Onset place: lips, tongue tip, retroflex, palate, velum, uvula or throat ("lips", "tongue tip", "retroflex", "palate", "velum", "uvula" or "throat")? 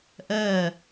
throat